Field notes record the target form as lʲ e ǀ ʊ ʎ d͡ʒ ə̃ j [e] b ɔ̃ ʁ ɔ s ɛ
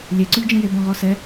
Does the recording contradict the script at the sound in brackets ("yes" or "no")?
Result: no